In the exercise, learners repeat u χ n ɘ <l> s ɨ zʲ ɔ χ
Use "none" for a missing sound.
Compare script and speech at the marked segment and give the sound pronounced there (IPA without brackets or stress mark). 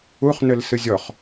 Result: l